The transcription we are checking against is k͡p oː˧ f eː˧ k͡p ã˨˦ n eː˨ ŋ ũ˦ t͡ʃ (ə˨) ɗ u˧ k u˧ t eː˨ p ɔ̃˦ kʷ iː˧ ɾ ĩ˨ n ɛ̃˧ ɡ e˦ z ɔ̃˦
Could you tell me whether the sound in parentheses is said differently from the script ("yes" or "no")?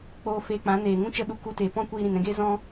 yes